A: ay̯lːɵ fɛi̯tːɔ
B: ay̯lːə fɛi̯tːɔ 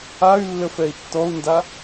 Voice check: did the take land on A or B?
B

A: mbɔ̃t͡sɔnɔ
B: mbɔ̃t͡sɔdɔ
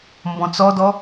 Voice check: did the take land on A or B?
B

